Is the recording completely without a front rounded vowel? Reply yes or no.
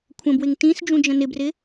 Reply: yes